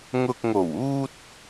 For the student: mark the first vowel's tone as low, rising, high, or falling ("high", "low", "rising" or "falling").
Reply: low